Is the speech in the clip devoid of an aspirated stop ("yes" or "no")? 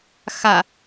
yes